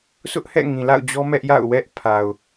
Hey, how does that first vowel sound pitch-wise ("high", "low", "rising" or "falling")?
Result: high